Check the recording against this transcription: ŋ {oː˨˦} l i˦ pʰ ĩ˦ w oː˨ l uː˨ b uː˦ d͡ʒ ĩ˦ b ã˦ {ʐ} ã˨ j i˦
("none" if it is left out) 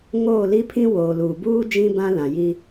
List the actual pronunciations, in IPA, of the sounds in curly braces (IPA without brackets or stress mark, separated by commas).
oː˦˨, l